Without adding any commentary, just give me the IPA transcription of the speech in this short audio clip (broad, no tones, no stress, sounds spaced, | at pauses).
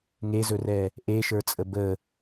ŋ e z ɵ r ɛ | ʔ e ʃ ə˞ t͡sʼ ə b ə